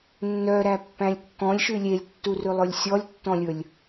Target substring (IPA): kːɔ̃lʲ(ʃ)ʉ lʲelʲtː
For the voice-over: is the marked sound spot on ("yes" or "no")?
yes